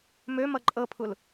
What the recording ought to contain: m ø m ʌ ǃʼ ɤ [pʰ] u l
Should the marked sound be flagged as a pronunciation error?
no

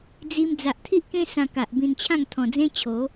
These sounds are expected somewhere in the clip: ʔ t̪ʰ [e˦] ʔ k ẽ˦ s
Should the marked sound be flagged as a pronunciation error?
yes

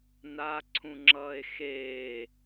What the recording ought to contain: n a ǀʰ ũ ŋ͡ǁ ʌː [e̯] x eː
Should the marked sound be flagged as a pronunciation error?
no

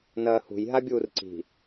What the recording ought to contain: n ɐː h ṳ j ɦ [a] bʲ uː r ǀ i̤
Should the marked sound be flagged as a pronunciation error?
no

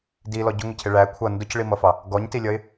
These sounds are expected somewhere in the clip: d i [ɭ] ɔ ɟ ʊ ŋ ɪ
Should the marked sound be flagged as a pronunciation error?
yes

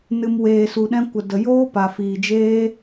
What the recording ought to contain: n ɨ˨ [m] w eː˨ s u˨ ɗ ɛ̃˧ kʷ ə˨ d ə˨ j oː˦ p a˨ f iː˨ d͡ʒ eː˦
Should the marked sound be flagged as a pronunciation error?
no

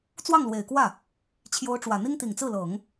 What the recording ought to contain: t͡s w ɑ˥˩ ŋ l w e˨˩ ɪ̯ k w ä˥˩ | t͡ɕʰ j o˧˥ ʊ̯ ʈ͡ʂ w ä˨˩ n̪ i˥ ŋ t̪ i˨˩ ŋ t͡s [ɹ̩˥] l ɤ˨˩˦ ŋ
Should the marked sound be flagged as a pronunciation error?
yes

